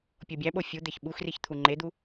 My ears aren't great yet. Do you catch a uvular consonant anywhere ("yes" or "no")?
no